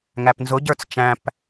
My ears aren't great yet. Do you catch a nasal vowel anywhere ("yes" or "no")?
yes